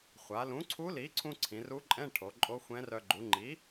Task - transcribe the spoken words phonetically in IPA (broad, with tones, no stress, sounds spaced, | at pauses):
χʷ a˩˧ l ũ˩˥ ǀʰ u˧˥ l i˩˥ ǀʰ ũ˧ ǀʰ ĩ˩˧ r u˧˥ ǃʼ ɛ̃˧˥˧ ʈʰ o˩˧ ǃʼ o˧˥ xʷ ɛ̃˧˥ r œ˧ ɡ͡ǃ u˩˥ ŋ͡ǃ i˩˥